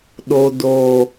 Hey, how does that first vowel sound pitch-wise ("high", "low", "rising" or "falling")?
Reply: low